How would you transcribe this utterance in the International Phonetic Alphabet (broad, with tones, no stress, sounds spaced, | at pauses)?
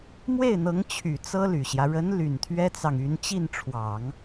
m w e˥˩ ɪ̯ n̪ ɤ˧˥ ŋ t͡ɕʰ y˨˩ t͡s ɤ˥ l y˨˩ ɕ j ä˦ ɻ ə˧˥ n l y˨˩ n t̪ʰ ɥ ɛ˥ t͡s ɑ˨ ŋ y˧˥ n t͡ɕ i˥˩ n ʈ͡ʂʰ w ɑ˨˩˦ ŋ